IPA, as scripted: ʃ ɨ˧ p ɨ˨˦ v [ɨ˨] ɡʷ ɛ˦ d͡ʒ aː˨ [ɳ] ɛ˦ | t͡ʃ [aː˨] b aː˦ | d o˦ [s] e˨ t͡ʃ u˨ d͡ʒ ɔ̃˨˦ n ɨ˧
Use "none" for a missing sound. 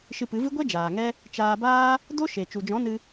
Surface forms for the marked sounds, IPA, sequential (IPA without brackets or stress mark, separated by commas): ɨ˦, ŋ, aː˧, ʃ